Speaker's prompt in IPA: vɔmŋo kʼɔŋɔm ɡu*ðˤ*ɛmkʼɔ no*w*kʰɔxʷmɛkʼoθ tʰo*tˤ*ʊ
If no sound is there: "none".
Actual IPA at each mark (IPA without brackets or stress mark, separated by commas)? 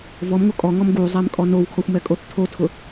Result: zˤ, w, tʰ